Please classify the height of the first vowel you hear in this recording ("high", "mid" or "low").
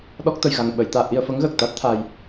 mid